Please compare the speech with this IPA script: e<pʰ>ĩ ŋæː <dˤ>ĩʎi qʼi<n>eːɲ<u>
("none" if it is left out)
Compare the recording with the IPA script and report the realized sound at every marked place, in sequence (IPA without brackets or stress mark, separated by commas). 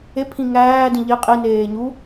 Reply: pʰ, d, n, u